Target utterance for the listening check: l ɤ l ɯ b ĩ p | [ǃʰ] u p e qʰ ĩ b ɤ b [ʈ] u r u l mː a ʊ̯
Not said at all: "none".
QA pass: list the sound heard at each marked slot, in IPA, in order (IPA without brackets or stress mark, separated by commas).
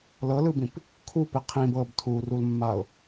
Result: kʰ, tʰ